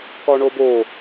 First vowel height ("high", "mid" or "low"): low